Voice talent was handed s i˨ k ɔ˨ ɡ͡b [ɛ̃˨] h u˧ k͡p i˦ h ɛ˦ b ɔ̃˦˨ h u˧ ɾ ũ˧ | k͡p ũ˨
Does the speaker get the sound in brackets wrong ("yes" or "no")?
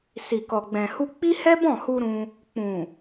no